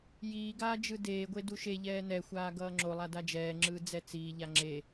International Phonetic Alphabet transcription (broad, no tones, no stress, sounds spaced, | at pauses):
j iː ɡ aː d͡ʒ ɯ d eː ɡʷ e d u ʃ e ʎ ɛː n ɛ xʷ aː ɡ ʌː ŋ͡ǁ o lˠ a d a d͡ʒ ɛː ŋ͡ǁ ɯː d͡z ɛ t͡s iː ʎ a ŋ͡ǁ e